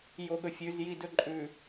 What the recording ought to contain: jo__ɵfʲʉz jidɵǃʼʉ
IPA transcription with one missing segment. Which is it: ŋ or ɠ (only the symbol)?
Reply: ɠ